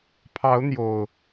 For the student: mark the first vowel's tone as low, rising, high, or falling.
rising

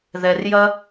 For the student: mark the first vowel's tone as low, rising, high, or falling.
low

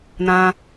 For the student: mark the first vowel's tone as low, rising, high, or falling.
high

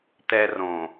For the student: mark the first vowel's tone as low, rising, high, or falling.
high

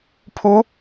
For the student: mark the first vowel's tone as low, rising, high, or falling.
rising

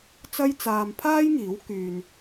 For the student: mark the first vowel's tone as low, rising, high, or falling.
high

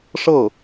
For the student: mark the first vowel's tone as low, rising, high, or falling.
falling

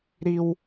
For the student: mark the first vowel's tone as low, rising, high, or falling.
high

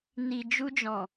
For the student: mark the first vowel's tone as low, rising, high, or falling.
low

